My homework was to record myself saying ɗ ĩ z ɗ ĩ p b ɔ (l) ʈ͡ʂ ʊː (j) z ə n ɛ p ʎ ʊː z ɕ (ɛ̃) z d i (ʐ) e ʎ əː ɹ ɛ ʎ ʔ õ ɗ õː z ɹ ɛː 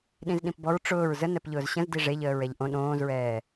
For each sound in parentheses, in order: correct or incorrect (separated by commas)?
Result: incorrect, incorrect, incorrect, correct